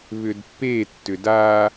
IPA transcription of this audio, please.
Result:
β ʏ d pː e tː ʏ d a

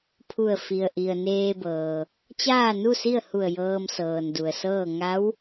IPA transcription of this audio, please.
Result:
pʰ u˧˩ ə̯ f i˩ ə̯ ʔ i˩ ə̯ n eː˧ b ɤː˩ | t͡ɕ aː˥˨ n u˥˨ s i˥˨ ə̯ h u˧˩ ə̯ j ɤː˧ m s ɤː˩ n d u˩ ə̯ s ɤː˥˨ ŋ a˧˥ w

